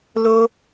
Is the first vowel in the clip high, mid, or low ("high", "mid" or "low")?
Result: mid